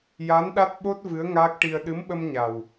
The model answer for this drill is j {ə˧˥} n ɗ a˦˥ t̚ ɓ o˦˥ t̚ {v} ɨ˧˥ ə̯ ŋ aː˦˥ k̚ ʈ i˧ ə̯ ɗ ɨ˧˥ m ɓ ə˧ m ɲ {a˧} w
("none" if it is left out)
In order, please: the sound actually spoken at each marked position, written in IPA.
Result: a˧˥, v, a˨˩

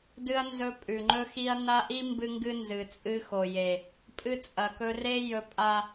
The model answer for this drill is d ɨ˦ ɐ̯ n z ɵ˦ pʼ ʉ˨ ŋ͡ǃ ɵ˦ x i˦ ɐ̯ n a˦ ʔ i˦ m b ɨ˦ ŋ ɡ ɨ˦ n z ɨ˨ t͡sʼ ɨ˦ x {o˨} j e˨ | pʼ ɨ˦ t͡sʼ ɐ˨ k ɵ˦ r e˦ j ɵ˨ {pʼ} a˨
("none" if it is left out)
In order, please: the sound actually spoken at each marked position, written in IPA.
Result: o˨, pʼ

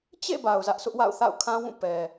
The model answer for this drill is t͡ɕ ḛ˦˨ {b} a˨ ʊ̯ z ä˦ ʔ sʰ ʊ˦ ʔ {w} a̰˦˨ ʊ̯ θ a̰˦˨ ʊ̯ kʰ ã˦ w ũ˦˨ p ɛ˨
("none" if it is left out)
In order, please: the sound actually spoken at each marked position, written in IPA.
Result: b, w

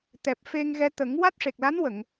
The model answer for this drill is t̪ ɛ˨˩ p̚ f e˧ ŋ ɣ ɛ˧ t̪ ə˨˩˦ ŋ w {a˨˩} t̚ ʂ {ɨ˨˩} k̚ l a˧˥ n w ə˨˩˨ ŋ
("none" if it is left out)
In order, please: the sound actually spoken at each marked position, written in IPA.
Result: a˦˥, e˨˩

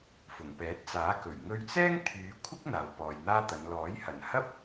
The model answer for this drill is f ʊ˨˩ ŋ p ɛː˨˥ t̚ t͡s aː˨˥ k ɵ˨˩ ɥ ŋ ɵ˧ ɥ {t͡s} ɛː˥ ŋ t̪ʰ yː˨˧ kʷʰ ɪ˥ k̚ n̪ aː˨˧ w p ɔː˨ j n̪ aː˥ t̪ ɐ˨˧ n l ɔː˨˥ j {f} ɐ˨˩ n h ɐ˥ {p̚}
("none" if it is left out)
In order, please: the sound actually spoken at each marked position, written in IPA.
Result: t͡s, h, p̚

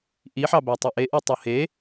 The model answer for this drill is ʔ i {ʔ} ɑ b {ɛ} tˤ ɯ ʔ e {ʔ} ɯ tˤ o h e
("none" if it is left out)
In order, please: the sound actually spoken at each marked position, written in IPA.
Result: ħ, æ, ʔ

